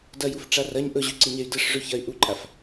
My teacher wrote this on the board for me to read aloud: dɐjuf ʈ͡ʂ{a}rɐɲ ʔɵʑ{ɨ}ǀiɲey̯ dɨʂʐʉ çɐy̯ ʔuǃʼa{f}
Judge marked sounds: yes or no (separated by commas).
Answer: yes, no, yes